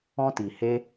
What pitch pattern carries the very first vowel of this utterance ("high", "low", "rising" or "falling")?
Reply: high